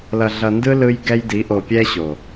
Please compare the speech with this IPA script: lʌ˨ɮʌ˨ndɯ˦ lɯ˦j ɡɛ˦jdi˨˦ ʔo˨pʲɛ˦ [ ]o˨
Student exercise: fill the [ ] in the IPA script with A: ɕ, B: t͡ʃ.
A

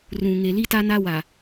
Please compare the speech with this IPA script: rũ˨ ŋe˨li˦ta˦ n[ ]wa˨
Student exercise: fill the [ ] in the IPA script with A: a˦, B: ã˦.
A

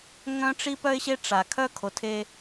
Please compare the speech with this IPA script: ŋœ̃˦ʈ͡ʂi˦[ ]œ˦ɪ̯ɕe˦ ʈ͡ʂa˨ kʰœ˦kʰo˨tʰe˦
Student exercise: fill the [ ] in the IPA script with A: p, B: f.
A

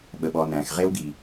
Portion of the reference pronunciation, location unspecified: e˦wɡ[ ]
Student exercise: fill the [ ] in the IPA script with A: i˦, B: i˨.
B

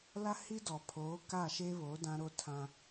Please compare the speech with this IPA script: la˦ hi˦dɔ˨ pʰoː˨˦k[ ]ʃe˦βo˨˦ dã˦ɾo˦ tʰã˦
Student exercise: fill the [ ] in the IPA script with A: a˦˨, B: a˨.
A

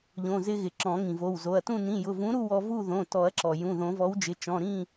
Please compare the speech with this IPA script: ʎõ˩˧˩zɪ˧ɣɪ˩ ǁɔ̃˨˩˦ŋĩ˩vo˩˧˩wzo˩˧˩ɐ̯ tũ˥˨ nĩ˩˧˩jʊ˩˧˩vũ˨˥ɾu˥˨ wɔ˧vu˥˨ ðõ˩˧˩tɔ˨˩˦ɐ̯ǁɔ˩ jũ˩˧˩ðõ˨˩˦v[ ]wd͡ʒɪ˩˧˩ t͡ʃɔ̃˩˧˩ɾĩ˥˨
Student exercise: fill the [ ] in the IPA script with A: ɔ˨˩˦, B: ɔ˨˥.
B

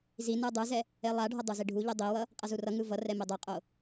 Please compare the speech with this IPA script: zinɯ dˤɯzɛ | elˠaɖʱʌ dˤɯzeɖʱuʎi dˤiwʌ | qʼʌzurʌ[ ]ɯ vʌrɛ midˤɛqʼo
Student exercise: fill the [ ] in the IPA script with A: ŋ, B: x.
A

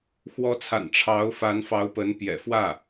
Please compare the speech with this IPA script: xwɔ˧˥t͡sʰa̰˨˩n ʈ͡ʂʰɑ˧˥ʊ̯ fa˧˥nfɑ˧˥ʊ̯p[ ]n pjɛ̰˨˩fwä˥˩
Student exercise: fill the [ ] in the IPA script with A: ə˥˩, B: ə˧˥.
B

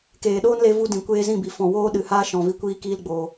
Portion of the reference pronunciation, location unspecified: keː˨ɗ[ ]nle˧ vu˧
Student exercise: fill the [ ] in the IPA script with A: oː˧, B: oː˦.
B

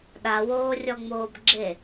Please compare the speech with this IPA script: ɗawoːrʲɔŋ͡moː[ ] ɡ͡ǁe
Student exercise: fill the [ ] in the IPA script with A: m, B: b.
B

